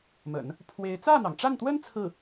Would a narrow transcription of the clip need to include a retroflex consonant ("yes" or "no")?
yes